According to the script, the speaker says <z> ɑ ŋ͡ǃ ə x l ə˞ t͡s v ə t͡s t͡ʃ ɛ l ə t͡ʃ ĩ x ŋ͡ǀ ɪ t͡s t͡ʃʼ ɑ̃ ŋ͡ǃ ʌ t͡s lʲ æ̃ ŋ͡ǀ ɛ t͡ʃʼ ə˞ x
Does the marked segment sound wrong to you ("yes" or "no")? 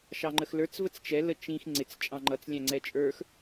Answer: yes